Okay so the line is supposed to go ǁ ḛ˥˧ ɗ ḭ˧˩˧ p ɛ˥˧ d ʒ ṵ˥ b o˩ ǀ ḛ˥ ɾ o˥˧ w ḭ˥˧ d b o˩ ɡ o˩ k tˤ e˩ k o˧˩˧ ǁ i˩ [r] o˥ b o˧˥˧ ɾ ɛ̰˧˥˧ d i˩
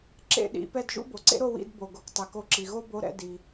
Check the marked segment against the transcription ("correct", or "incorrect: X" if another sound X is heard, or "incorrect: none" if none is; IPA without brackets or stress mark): incorrect: ɣ